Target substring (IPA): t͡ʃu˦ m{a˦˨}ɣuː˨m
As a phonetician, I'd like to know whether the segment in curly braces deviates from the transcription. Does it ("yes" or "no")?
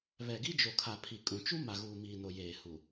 yes